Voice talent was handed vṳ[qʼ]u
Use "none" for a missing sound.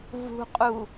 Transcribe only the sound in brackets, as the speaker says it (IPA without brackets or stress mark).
qʼ